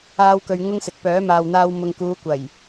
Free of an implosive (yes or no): yes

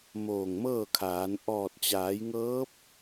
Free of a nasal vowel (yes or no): yes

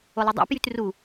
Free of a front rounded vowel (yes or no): no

